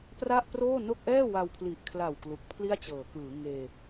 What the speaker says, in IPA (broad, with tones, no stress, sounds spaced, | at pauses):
p r a˥˩ ʔ p r oː˥˩ n o˥˩ k̚ ʔ ɛː˥˩ w a˧ w pʰ l i˨˩ ʔ kʰ l a˨˩ w k l u˨˩ k̚ pʰ l i˥˩ a̯ t͡ɕ ɤː˩˦ k ɯː˩˦ ŋ eː˧